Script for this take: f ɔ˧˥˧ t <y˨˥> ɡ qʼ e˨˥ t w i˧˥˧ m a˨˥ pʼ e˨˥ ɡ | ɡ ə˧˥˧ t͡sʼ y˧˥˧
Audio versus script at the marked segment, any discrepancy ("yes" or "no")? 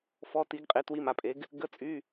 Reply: yes